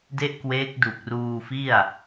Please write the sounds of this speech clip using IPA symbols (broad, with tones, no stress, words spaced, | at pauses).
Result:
de˥˩ʔkweː˦˥k̚ du˨˩k̚ruː˧fi˥˩a̯